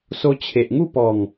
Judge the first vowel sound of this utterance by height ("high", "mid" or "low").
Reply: mid